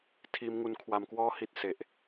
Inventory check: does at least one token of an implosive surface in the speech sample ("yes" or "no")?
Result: no